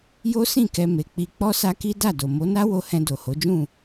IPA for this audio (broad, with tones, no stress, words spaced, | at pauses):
jo˦sĩ˦˨ kɛ˧ me˨k͡pi˧ k͡pɔ˦sa˦ki˦ da˦˨do˨ mo˨˦na˦wo˧hɛ̃˧ do˨ho˨˦d͡ʒũ˦˨